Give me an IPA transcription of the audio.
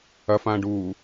ɐfãːɖuː

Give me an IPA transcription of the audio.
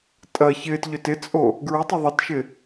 tʼɐ çɪːtʎøt ɪt͡sʼo | ɡɹʊtˤʊ ðˤətʃɪ

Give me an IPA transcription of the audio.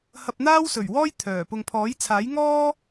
hɐ˧p̚n̪aː˥w sɵ˨˩ɥwɔː˥j t̪ʰœː˨˩ pʊ˨ŋpʰɔː˨˥jt͡sʰaː˨˥jŋɔː˥

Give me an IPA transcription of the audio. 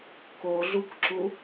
koɮukǁu

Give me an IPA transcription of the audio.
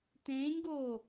tẽːɲɡoː

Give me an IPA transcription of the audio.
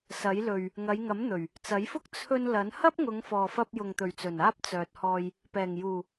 sɐ˨˥jlɵ˨ɥ | ŋɐ˨˧jŋɐ˨˥m n̪ɵ˨˩ɥ | t͡sɐ˨˥jfʊ˥k̚ t͡sʰɵ˧n lɐ˨˥n hɐ˥p̚ŋʊ˨˧ŋ fɔː˨fɐ˧p̚ jʊ˨ŋt̪ɵ˨˩ɥt͡sɵ˨˩n aː˥p̚t͡sœː˨t̚hɔː˧j | pɛː˨˩ŋjuː˨˩

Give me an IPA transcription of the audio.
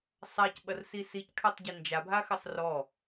sˤacɓɐrsi sickʰatˤɟi nd͡ʒabʱaxɐsˤ rɔ

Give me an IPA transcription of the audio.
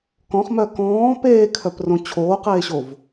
kɔ̃χmœ kɔ̃ː peːkʰœprõ t͡ɕʰoːqeːɕov

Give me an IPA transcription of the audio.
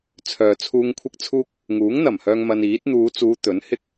t͡sʰœː˧t͡sʰuː˥ŋ kʷʰɪ˥k̚t͡sʰuː˥k̚ | ŋuː˨˥ŋn̪ɐ˨˩mhœː˧ŋ mɐ˧niː˨˥t̚ n̪uː˨˧t͡suː˨˧ t̪ɵ˨˥nhɪ˥k̚

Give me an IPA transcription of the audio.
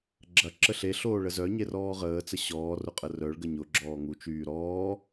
ɡ͡ǁɐǁə ɬeɬoː ɭəzœɲer ɔːʁəːt͡sə ɕɔːrʊ qʼərœɭɡə ɲʊ ɡ͡ǁɔːŋut͡ʃyː ɾɔː

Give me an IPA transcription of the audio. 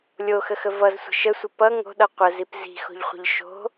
lʲoxəxə vʌzsʷə̤ ʃəsʷə pʌ ŋo̤ɗʌ qʷəzip zi̤xo̤ʎχʷə̤ʎ ʃo̤

